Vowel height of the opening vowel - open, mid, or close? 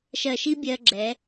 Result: mid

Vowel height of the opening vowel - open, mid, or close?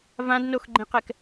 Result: open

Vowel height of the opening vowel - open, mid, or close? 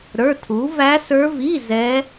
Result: mid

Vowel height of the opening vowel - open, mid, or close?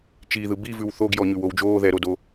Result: close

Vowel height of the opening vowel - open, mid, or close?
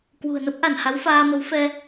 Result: close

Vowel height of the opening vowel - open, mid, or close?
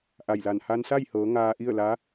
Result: open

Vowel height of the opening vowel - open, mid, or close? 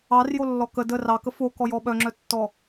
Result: open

